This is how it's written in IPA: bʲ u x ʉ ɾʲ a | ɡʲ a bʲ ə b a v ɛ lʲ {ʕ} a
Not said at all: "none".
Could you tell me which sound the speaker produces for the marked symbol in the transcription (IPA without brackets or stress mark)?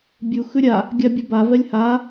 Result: h